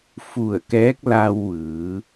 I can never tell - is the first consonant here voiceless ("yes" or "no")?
yes